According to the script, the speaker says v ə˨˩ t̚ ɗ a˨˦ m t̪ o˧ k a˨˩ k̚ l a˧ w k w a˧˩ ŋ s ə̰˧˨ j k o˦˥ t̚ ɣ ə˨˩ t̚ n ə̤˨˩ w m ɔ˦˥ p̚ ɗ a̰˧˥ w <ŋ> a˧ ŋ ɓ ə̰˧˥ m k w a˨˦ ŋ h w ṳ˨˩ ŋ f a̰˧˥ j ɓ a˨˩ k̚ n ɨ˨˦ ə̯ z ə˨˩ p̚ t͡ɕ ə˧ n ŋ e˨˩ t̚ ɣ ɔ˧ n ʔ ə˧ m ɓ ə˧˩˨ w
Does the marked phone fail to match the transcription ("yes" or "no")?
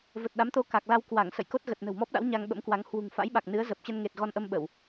yes